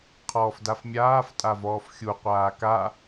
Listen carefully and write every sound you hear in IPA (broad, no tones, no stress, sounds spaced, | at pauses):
qʰ ɔː f d a f mʲ aː f tʼ a v ɔː f xʲ u qʷ aː k a